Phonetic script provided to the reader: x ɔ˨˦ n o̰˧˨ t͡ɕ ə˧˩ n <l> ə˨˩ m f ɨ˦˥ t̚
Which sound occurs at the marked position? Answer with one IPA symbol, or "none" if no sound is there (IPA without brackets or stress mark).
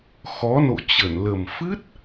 l